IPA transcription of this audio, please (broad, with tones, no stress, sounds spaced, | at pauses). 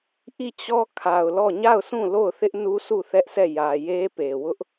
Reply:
ʔ i˦˨ t͡ɕ ɔ˦ kʰ a˨ ʊ̯ l ɔ˦˨ ɲ a˦˨ ʊ̯ s ũ˦˨ l o˦˨ ʊ̯ θ ɪ˦ ʔ n u˦ sʰ u˦˨ θ ɛ˦ ʔ s ɛ˦˨ j ä˨ j e˦ p e˨ w ʊ˦ ʔ